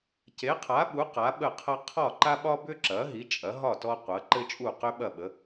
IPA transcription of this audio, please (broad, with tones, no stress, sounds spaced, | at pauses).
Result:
c e˩˥ qʰ a˩˥ ɓ u˩˥ q a˩˥ ɓ ə˥˩ qʰ ɐ˥ qʰ ɒ˥˩ ǃ a˥ ɓ ɒ˥ b ʏ˥ ǁ ɐ˩˥ ɦ i˩˥ t͡ʃʼ ɐ˩˥ ɦ ɒ˥˩ t ɔ˥ qʷ ɐ˩˥ ǃ ɘ˥ t͡ʃʼ u˥˩ q ʏ˥ ɓ ɐ˥˩ ɓ ə˩˥